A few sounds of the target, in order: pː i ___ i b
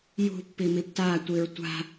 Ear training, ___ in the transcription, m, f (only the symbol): m